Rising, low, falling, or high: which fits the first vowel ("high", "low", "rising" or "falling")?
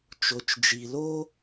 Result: low